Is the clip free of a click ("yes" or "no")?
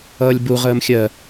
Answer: yes